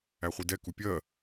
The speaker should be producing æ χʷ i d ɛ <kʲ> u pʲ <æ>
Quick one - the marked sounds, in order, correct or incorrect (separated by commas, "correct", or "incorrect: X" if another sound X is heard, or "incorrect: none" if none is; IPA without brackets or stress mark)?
incorrect: k, incorrect: ɜ